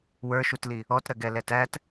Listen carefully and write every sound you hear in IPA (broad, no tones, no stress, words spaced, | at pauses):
wə˞ʃutli | ɔtɾɜɡɛ lɛtæt